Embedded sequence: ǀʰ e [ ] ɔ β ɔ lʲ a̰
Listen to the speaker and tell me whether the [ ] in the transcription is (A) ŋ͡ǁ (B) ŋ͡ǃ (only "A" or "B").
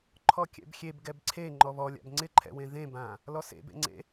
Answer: B